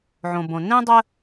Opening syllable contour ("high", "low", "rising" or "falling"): low